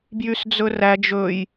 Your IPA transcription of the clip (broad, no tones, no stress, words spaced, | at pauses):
bjysd͡zɵræ d͡ʒɵj